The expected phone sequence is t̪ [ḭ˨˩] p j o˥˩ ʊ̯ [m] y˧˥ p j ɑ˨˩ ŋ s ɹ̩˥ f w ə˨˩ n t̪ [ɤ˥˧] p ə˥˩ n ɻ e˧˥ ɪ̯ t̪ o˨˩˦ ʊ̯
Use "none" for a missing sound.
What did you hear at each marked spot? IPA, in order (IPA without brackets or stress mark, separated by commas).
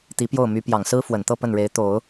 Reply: i˧˥, m, ɤ˥˧